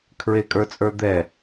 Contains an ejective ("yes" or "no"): yes